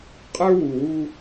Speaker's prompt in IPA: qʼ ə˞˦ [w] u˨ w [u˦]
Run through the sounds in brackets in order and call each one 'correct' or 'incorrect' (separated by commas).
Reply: correct, correct